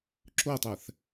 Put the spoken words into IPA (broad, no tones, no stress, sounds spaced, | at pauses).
ǁ o tˤ æ θ